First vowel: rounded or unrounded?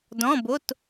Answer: rounded